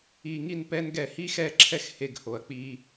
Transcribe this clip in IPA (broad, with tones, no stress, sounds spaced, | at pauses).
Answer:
i˨˩ ŋ i˦˨ n p ɛ˦ n ɡ ɛ˦˨ h i˦ x ɛ˦˨ ǁʰ ɛ˦ x h e˦˨ ɡ h o˨˩ ɐ̯ k͡p i˦